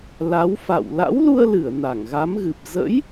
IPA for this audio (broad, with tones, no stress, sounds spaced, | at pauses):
l a˨˦ w f a̰˧˨ w l a̰˧˥ w l u˧ ə̯ l ɨ˧˩ ə̯ n a˧˩ ŋ ɣ a˨˦ m ɣ ɨ˨˩ p̚ z ə̰˧˥ j